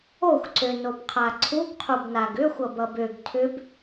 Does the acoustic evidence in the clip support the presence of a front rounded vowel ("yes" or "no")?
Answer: yes